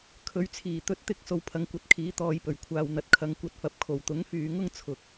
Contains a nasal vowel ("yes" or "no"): no